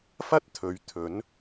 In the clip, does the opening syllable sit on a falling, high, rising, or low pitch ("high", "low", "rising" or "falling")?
high